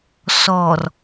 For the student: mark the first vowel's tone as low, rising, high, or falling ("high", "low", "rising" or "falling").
low